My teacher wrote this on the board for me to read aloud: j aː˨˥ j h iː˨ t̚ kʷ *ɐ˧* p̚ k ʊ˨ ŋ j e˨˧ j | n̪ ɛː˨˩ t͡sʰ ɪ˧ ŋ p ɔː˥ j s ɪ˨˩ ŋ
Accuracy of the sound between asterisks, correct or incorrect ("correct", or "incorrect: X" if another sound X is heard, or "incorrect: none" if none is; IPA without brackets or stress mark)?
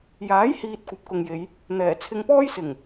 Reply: incorrect: ɐ˨˥